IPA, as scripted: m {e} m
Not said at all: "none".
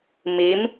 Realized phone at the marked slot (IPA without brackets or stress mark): i